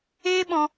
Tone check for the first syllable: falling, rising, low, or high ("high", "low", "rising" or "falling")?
high